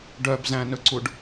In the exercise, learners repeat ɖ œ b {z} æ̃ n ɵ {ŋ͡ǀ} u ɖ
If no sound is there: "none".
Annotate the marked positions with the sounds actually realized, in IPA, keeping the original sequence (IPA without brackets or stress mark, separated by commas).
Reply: z, ǀ